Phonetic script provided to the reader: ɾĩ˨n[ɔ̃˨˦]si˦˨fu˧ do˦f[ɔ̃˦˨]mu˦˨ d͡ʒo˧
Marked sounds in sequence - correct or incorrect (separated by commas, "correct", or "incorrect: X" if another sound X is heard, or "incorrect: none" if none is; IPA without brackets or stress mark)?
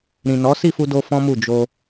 incorrect: ɔ˨˦, incorrect: ɔ̃˦